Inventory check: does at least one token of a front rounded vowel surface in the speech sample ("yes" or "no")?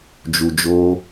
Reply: no